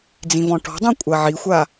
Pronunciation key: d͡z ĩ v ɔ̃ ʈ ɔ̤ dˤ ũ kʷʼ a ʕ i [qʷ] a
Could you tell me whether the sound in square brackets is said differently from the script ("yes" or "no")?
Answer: yes